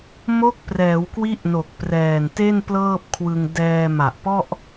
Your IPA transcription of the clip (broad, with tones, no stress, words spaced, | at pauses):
mo˦˥k̚ prɛː˩˦wkwi˦˥ʔno˨˩k̚ prɛː˨˩nte˥˩n plɤː˥˩p̚kʰwɯ˧ŋ dɛː˧ ma˨˩ʔpɔ˥˩ʔ